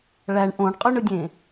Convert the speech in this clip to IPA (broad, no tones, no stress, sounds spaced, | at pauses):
ɭ æ ɳ ʔ õ ɳ qʼ y ɳ ɯ dʲ ẽ